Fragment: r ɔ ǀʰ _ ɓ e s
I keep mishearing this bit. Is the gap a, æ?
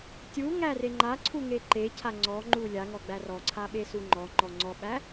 a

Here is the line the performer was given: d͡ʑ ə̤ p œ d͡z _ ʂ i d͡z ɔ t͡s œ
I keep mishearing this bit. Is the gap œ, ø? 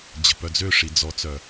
ø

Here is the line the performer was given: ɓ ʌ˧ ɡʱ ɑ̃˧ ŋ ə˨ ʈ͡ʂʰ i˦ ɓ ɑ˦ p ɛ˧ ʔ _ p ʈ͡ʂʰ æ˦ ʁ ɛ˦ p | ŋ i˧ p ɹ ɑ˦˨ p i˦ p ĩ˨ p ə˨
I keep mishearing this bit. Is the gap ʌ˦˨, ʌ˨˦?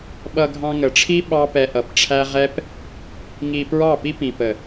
ʌ˨˦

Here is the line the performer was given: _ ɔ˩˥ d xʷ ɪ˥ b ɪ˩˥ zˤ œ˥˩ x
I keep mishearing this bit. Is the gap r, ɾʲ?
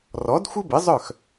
r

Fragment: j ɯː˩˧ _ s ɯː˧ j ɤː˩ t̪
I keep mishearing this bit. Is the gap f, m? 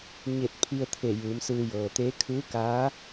m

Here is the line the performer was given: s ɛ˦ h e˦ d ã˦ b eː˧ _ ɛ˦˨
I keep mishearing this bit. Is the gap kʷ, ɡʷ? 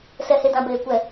kʷ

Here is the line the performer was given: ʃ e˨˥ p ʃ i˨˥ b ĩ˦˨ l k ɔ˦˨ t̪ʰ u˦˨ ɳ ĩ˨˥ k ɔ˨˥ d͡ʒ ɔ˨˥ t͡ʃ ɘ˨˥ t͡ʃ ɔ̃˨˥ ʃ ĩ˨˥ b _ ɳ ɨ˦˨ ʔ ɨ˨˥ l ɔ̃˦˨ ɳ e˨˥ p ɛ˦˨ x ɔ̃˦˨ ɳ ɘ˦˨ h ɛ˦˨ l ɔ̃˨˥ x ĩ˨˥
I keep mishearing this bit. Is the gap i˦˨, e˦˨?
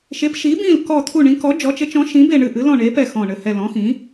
e˦˨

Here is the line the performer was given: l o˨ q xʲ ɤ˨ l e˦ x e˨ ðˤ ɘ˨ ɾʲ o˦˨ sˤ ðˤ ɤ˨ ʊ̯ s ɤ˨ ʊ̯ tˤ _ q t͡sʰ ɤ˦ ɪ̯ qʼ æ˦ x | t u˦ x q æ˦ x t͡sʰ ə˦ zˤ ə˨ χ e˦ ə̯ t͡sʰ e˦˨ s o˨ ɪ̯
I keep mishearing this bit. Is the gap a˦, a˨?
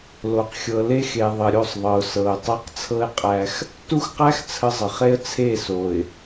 a˦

